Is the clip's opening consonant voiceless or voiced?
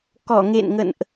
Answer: voiceless